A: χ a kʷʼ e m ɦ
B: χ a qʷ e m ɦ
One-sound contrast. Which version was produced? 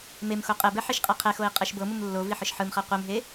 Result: B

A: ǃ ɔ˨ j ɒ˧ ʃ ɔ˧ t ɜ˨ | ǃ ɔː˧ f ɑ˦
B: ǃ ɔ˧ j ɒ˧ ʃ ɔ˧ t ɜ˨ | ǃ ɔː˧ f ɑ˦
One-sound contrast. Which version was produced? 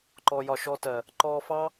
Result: B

